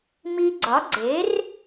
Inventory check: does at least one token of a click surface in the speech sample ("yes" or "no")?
yes